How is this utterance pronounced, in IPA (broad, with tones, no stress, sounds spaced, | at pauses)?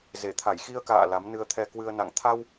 z e˧˩ t̪ʰ a˧˩ j x i˧ ə̯ k a̰ː˧˨ l a˨˦ m n ɨ˧ ə̯ t̪ʰ ɛ˧ k w ɨ˧ ə̯ n a̰˧˨ ŋ t̪ʰ a˧ w